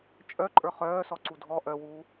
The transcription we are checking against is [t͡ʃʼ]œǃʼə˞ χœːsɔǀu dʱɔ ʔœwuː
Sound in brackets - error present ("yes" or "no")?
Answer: no